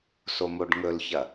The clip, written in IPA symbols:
s o m o ɖ ŋ ɵ l ç ɐ

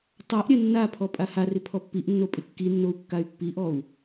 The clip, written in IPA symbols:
tˤ a ʔ ɾʲ ɛ nː a pʰ ɔ pʼ a h a r ɪ pʰ ɔ pː i ʔ nː o pʼ ɪ kː i nː o u̯ kː a y̯ pː i ʔ ɔ u̯

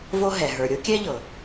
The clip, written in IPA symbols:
v o˥ ɦ ɛ˩ ɦ ə˞˩ ɾʲ o˥ kʲ ɛ˥ ʎ ɤ˩

